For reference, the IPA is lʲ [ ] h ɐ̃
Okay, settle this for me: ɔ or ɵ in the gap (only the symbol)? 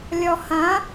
ɔ